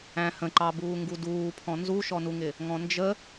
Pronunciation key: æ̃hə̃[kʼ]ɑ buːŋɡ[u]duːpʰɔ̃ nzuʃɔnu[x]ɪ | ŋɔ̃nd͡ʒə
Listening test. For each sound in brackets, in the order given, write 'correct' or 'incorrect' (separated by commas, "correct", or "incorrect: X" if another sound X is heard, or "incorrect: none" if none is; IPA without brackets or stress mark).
incorrect: ǃ, correct, incorrect: ŋ